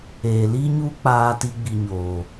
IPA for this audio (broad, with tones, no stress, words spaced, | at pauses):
eː˨li˦ɲuː˦ k͡paː˦ti˦ ɡ͡bi˨ɲoː˨